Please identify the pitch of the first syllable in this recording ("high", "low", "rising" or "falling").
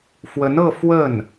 rising